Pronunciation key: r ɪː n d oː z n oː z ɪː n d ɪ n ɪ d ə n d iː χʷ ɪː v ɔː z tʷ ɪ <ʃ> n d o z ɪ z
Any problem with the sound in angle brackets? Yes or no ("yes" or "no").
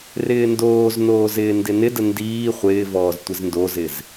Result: yes